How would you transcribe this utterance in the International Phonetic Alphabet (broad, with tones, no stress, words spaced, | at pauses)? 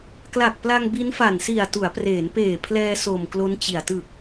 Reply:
kla˨˩k̚pla˧ŋ bi˦˥nfa˨˩nsi˨˩a̯ tu˩˦a̯preː˩˦npeː˨˩pʰlɛː˧ so˨˩m klo˦˥nt͡ɕi˨˩a̯ tɯ˨˩k̚